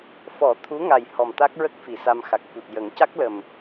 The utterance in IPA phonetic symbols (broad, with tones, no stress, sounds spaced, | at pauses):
f ɔ˨˩˦ t̪ʰ u˧˥ ŋ a˨˩ j h ɔ˨˩ m t̪ a˦˥ k̚ ɹ ə˦˥ k̚ f i˨˩˨ s a˧ m x a˨˩ k̚ f u˨˩ t̚ j ə˨˩˦ ŋ c a˦˥ k̚ l ə˨˩ m